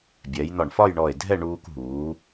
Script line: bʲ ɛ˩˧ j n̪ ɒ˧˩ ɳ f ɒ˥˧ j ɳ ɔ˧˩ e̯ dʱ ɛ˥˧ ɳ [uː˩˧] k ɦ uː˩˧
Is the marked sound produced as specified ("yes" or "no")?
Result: no